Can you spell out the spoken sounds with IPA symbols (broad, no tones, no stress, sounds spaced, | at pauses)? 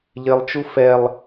ʎ ɪ lˠ t͡ʃ u f ɛ lˠ